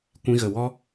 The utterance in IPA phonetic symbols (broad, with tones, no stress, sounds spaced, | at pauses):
kʷ ĩ˧ ɣ ə˨ w ɔ˦